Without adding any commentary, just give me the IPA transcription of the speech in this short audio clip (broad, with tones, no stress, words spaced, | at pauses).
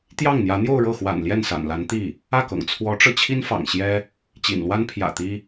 t̪jɑ˥˩ŋn̪jä˧˥ n̪jo˥˧ʊ̯ɻɤ˥˩xwa̰˨˩n ljɛ˥˩nsa̰˨˩nla˧˥nt̪i˥˩ | ä˥˩kɤ̰˨˩ŋ t͡sʰwɔ˧˥ʈ͡ʂɤ˧ t͡ɕʰi˥nfɑ̰˨˩ŋɕjɛ˥ | t͡ɕḭ˨˩nlwa˥n pʰjä̰˨˩ t̪i˥